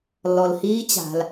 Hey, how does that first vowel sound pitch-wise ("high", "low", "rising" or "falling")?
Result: low